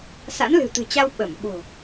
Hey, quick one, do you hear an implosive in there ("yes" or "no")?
yes